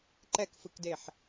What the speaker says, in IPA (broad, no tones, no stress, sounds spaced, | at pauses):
ǃ ɛ k f ɯ k d e ħ